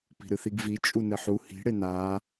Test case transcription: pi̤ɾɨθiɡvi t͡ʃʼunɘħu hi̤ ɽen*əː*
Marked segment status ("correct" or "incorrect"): incorrect